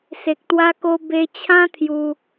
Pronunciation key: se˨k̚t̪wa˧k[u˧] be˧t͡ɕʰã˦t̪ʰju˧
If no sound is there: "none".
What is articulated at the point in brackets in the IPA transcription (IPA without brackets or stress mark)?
o˧